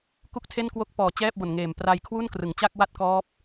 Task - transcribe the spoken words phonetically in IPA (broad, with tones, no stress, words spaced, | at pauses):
ku˥˩k̚tʰe˥˩nkwo˥˩k̚ pɔː˨˩t͡ɕɛː˥˩p̚bo˨˩nŋeː˨˩m pra˧jkʰwu˥˩n krɯ˩˦ŋt͡ɕa˥˩k̚wa˥˩t̚kɔː˦˥p̚